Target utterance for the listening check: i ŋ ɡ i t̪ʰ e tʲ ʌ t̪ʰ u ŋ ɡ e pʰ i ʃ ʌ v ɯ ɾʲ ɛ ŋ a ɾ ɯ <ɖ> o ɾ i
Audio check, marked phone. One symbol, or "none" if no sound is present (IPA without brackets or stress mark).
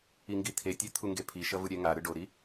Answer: ɖ